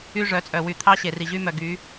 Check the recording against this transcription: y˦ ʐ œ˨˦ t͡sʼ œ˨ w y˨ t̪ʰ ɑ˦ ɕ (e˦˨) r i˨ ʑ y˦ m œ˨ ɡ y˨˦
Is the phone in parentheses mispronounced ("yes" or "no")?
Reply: yes